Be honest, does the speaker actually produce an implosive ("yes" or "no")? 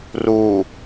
no